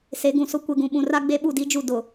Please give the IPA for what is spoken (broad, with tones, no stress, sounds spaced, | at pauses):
s e˨˦ ɡ ũ˨ s ʊ˦ kʷ e˨ ɡ ũ˨ ɓ ũ˨ r a˦ ɡ͡b e˦ ɓ u˦˨ d i˦ d͡ʒ u˦˨ d ʊ˨